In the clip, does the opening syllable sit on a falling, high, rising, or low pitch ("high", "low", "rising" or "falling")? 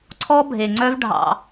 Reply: high